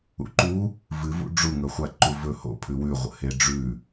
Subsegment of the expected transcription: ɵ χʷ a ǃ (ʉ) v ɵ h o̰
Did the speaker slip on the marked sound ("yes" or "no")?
yes